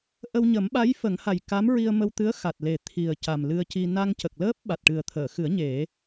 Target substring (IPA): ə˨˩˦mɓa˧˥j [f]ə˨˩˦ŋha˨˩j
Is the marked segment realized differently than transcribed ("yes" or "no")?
no